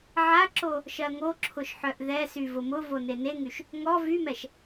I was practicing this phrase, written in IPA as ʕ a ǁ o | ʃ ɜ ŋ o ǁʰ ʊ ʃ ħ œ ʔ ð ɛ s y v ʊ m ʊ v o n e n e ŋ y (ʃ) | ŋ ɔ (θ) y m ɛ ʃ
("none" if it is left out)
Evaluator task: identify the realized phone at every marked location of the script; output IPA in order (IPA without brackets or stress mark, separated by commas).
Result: ʃ, v